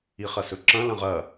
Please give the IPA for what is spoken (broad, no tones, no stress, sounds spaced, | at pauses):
i χ ɐ s ɵ ǁ ɐ̃ l ɐ̃ ʁ ɐ